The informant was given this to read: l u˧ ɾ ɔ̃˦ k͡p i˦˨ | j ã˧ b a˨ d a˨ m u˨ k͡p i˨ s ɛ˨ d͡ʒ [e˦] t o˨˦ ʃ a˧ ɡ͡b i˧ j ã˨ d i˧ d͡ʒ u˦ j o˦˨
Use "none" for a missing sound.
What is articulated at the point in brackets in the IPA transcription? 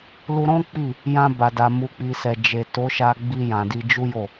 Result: e˨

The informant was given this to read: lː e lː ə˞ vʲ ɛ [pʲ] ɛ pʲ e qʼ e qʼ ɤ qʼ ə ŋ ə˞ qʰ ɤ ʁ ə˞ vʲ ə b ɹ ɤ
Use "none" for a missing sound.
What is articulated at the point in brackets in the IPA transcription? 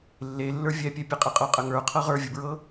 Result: pʲ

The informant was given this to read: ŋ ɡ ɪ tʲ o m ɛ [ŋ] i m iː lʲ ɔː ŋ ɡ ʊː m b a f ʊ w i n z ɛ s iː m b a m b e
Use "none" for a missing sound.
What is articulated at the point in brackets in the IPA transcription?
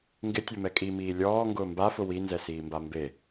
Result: kʼ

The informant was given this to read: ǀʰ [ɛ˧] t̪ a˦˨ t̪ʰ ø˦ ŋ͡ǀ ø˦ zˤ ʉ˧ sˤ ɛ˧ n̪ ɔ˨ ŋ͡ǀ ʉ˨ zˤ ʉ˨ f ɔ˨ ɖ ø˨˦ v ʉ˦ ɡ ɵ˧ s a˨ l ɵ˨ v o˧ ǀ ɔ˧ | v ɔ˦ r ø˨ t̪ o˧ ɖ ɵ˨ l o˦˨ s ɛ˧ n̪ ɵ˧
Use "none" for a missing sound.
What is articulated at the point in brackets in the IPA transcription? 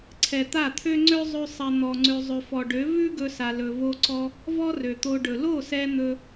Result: ɛ˨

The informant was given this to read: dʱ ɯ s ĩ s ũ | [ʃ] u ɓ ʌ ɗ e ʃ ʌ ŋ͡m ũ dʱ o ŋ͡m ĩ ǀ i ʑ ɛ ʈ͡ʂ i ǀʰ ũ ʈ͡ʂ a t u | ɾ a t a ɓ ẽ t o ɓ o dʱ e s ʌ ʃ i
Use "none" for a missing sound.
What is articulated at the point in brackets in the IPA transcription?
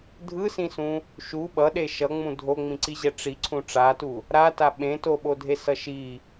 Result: ʃ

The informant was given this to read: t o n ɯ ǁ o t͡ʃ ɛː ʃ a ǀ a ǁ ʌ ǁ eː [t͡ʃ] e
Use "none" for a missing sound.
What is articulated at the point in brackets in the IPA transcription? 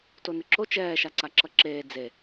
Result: d͡z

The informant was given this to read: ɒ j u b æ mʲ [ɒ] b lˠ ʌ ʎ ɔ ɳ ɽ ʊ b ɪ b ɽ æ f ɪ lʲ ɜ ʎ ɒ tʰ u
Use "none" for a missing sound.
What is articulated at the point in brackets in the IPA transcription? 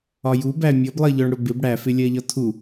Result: ʌ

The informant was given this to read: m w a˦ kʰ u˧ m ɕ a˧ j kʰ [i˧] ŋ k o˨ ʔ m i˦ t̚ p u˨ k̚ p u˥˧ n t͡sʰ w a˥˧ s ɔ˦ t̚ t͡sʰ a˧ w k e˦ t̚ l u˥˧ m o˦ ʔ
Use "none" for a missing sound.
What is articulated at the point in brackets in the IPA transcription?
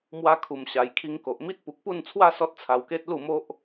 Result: i˧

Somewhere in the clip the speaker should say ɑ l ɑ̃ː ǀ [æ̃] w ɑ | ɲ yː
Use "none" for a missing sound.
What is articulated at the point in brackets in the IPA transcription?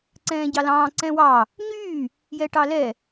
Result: ɛ̃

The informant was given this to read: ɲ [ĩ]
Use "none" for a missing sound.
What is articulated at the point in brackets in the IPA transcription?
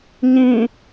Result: ĩ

